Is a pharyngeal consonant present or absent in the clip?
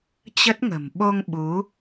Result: absent